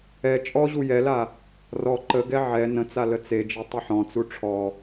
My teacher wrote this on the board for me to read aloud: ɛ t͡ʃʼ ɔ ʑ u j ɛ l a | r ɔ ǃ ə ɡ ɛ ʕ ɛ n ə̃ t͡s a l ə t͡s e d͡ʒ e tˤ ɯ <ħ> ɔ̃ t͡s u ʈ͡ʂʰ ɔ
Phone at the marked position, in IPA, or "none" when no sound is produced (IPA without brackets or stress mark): ħ